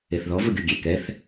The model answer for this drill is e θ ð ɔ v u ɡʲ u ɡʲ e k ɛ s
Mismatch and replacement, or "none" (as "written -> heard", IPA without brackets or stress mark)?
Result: s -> θ